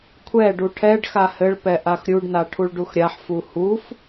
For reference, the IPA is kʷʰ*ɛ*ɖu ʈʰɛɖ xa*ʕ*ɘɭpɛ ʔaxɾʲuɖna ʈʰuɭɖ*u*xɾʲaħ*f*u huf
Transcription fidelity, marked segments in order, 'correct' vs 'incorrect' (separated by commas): correct, incorrect, correct, correct